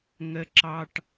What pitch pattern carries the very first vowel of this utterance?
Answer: low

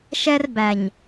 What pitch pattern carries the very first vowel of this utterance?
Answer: high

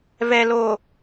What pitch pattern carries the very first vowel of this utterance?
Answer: low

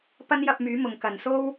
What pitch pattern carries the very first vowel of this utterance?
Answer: high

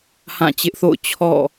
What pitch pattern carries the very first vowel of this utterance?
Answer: falling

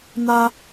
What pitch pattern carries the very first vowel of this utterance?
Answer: high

